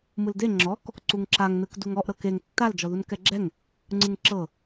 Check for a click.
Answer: present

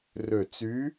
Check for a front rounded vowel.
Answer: present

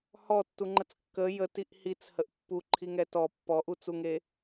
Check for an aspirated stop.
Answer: present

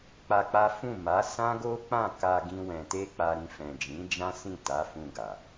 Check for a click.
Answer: absent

